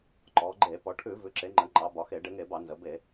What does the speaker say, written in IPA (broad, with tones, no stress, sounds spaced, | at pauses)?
ǃ ɔ˩˧ ɡ͡ǃ e˧˩˧ p ɔ˩˧ ʈʰ ʉ˧˩˧ v ʉ˩˧ ǁ e˩˧ ŋ͡ǃ ə˩˧ ŋ͡ǃ ɑ˩˧ b ɒ˩˧ x e˧˩˧ ɖ e˩˧ ŋ e˧˩˧ b ɑ˧˩˧ n z ə˩˧ b e˧˩˧